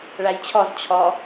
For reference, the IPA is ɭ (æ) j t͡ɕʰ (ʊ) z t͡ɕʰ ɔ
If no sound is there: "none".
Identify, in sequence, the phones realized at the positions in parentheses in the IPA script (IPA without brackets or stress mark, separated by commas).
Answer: æ, ɔ